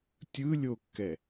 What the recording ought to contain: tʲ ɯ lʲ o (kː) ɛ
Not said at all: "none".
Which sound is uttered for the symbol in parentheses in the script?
kː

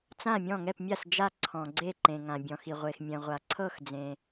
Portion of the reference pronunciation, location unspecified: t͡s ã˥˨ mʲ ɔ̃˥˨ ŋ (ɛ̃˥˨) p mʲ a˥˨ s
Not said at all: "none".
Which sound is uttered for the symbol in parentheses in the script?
ɛ˥˨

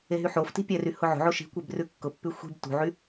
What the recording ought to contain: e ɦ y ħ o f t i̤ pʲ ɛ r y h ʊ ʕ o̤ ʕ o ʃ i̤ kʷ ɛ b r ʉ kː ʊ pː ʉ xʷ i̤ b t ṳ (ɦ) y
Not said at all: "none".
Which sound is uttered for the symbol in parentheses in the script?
ʕ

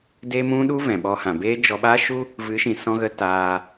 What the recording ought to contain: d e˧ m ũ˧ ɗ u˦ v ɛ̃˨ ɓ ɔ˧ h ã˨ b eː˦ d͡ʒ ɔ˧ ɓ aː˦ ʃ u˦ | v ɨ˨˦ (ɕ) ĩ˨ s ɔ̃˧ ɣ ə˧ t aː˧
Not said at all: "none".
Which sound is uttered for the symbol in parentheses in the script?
ʃ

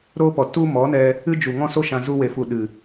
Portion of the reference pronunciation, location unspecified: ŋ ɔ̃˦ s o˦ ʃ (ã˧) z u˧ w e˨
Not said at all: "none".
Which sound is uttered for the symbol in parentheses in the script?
ã˧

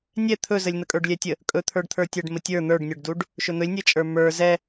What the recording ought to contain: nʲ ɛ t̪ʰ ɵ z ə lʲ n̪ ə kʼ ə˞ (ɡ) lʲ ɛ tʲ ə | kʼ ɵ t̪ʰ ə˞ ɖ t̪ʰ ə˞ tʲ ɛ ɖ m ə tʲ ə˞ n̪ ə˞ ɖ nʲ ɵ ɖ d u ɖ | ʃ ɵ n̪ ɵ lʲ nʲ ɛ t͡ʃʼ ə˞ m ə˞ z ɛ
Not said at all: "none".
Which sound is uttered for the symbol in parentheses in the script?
ɖ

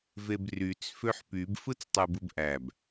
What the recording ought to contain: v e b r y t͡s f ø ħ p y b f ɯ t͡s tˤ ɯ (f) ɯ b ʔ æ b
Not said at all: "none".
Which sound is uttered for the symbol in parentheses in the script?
b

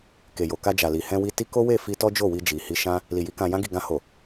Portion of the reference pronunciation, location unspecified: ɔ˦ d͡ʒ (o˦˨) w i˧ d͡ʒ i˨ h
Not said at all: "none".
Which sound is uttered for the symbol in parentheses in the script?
o˦˨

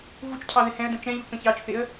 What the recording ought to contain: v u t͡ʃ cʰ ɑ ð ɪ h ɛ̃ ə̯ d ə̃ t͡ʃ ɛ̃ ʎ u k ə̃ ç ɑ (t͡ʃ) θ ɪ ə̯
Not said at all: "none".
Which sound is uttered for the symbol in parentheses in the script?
t͡ʃ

